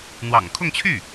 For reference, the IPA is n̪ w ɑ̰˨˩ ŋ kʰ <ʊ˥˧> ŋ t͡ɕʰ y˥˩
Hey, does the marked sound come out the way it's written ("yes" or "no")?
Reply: yes